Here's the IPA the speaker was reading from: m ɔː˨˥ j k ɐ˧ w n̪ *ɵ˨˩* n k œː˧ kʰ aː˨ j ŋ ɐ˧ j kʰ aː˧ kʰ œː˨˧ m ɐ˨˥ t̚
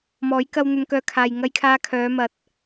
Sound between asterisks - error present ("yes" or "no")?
yes